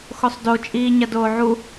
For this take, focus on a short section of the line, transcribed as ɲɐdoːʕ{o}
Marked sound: incorrect: u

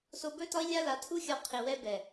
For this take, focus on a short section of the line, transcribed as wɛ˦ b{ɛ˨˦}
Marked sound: incorrect: ɛ˨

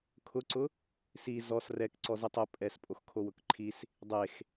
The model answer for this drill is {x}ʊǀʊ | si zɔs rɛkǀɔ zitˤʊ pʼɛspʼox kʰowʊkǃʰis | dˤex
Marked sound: incorrect: kʰ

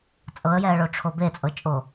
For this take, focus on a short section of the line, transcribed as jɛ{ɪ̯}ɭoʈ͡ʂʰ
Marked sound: incorrect: ə̯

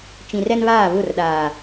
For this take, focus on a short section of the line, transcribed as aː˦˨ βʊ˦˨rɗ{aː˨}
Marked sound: correct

